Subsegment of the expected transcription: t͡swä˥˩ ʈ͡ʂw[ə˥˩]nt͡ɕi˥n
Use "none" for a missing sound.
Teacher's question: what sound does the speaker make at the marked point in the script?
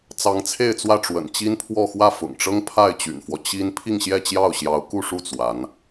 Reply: ə̰˨˩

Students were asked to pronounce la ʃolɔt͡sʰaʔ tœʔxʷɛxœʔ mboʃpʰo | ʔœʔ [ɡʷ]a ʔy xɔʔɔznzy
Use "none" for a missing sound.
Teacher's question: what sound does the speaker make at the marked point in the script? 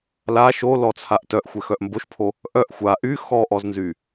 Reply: xʷ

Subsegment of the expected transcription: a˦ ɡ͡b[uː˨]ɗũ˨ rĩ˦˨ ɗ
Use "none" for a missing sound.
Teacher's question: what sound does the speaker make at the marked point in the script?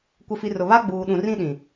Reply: uː˨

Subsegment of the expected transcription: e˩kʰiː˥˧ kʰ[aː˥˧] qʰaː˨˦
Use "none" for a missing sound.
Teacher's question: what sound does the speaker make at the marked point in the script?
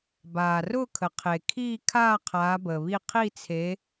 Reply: aː˥˧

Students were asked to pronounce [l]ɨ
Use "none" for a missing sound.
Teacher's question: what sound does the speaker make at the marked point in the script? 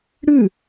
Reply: ɽ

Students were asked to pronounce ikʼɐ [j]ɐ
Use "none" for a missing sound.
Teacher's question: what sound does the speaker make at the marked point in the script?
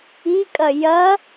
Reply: j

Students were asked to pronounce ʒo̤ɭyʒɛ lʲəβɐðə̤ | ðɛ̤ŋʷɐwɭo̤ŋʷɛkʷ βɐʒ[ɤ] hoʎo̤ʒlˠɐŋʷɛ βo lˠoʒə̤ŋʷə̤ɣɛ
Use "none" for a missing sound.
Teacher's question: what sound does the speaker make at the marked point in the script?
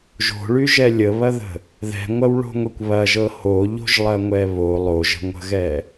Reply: ɤ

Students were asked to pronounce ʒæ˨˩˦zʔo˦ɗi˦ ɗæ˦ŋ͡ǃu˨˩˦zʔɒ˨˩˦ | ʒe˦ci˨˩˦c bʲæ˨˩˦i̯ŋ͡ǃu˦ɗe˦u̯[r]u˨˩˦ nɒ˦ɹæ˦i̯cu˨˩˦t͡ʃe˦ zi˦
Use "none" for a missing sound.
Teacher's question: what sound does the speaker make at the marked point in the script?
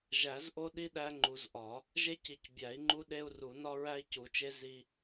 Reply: r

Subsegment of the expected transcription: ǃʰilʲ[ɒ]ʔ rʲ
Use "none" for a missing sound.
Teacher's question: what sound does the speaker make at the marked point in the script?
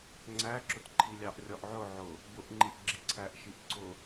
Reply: ɑ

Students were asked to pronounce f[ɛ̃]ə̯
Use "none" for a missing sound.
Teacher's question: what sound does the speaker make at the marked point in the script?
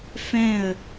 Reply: ɛ̃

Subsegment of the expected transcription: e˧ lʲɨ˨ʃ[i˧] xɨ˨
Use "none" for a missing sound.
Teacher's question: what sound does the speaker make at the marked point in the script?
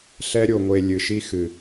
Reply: i˧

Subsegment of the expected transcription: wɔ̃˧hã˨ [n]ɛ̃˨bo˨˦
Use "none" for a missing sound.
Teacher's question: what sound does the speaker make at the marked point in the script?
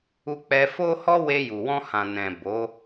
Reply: n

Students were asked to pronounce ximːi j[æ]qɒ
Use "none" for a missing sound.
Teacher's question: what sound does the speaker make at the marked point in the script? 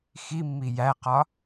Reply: æ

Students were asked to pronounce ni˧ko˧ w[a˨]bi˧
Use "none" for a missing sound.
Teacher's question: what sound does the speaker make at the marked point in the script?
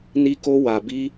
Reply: a˨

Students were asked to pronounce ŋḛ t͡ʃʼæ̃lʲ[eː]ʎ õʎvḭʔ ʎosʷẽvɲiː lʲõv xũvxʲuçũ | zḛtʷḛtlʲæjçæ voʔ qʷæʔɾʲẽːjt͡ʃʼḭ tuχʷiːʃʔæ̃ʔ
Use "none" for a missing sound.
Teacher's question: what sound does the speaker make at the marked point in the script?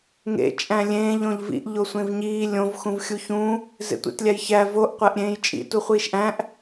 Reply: ẽː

